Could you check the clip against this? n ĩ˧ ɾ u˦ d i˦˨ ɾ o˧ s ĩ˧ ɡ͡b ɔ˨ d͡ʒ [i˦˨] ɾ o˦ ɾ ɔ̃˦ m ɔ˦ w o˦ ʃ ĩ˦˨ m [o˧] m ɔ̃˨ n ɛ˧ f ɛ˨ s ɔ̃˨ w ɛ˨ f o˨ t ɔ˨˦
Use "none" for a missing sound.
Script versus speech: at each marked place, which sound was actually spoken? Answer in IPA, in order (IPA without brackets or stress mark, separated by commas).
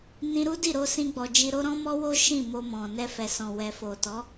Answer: i˧, o˧